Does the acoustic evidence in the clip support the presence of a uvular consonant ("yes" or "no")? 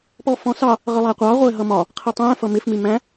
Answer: yes